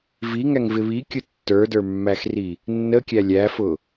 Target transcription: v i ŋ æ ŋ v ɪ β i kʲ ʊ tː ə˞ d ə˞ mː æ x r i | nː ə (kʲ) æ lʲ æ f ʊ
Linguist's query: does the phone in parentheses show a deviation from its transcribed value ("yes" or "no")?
no